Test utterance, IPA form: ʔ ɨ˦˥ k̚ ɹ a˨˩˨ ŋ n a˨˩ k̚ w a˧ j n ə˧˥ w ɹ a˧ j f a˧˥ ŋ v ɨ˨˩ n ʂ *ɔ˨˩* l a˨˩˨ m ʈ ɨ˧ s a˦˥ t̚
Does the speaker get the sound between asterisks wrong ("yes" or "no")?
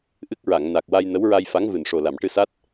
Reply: yes